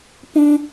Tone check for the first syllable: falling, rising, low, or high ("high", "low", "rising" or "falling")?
high